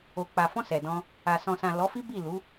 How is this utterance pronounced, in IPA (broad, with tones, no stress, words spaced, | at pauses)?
o˨k͡pa˨fɔ̃˧ sɛ˨dɔ̃˧ | a˨ sɔ̃˨sã˨ lɔ˨˦fi˦ bi˦˨lu˨˦